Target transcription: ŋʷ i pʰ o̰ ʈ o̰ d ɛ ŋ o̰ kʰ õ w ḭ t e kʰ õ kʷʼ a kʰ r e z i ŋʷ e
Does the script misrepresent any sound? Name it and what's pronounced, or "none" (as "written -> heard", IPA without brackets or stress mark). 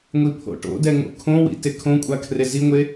none